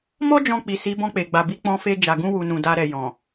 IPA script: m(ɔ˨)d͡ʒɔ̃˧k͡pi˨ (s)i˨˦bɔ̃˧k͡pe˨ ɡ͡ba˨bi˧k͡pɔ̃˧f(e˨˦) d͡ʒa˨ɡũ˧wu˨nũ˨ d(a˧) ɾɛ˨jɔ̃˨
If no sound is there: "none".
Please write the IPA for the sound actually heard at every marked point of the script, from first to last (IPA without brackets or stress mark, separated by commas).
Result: ɔ˦, s, e˧, a˧